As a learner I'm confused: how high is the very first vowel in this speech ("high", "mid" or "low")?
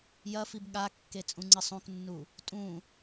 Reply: low